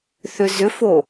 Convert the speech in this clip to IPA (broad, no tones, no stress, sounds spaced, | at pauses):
θ ʏ z ʏ f o